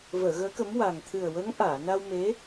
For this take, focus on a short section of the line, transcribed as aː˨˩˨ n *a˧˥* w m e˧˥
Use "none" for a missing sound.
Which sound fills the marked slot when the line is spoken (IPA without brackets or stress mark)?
a˧